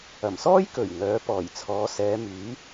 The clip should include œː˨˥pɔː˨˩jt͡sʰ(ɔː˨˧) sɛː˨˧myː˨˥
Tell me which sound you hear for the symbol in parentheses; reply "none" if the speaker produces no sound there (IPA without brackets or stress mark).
ɔː˨˧